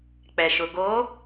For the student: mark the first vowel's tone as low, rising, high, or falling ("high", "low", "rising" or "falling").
low